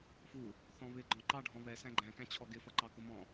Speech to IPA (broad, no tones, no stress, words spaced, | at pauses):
fu | θɔ̃βɪ ɡ͡ǃɔ̃ǃɑɖʱɔ̃ βɛsæ̃ ɡ͡ǃæ̃kæ̃t͡ɕʰɔ ɡɪfʌǃɑ kʊmɔ̃